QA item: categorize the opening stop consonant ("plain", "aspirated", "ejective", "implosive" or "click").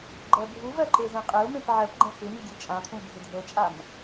click